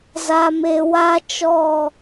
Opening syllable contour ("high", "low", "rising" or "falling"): low